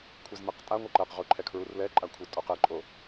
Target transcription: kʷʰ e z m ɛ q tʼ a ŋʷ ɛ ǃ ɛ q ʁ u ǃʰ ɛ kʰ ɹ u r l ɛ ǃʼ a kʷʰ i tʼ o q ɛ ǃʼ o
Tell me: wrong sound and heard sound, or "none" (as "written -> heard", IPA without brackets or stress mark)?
none